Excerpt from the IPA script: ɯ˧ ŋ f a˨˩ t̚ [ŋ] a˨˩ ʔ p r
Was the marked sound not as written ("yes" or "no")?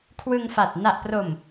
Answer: yes